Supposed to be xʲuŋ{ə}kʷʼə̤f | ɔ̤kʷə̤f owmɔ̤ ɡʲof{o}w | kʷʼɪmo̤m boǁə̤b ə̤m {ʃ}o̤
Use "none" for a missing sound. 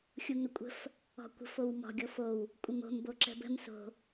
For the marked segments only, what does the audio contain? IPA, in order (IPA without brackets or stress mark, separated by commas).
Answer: ə, o, s